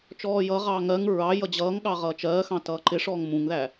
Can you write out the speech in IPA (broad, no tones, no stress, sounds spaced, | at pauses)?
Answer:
t͡ʃ ɔː j ʌ ʁ ɑː ŋ ɜ ŋ ɹ ɑ j ʌ d͡ʑ ʌː ŋ ɠ ɑ ʁ ʌː t͡ʃ ɜː x ɑ̃ t ʌː ǃ ɪ ʂ ɔː ŋ m ũ ŋ ð æ